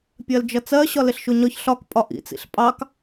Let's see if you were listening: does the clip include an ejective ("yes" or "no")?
yes